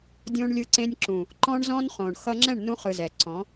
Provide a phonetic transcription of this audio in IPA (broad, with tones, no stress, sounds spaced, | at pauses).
dʲ õ˧ ɳ lʲ ɯ˧ ǀ ẽ˧ nʲ ǁ ũ˨ | ǃ ɔ̃˦ ɳ z ɔ̃˦ n χ õ˨ ɳ x ʌ˧ ŋ͡ǁ ɛ̃˦˨ ɳ n ũ˧ χ ɯ˨ z ɛ˨ ǀ ɔ̃˨˦